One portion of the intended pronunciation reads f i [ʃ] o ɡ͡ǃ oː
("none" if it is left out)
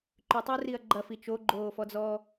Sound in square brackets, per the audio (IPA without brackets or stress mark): t͡ʃ